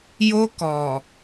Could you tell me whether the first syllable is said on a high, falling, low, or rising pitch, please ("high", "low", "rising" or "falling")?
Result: high